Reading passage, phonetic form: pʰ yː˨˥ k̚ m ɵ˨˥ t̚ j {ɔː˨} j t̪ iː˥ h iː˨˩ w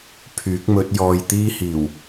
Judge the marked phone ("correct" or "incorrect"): incorrect